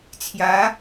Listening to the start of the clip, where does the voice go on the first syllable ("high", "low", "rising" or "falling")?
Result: rising